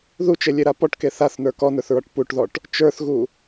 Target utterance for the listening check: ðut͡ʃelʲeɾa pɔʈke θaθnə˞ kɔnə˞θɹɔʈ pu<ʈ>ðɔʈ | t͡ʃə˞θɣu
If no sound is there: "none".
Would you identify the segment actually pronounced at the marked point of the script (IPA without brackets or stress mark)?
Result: ʈ